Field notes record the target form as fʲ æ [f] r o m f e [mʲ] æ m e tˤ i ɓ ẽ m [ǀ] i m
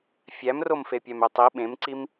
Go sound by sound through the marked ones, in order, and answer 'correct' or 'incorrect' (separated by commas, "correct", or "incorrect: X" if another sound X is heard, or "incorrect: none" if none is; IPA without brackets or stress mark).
incorrect: m, incorrect: pʲ, correct